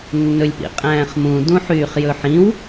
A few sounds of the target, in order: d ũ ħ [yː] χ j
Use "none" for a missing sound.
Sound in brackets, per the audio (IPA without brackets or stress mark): yː